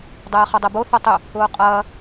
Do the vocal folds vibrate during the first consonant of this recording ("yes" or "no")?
yes